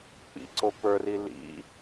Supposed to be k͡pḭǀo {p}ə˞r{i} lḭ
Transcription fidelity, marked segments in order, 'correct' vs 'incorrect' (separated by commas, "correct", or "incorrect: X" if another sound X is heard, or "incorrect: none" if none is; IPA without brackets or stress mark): correct, correct